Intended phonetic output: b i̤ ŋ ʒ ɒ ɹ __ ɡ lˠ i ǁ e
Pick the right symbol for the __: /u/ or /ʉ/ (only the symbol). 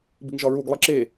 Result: u